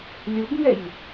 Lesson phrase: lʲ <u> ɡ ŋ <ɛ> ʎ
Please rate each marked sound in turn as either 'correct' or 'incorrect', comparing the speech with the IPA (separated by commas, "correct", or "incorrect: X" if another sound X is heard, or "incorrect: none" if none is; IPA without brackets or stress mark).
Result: correct, correct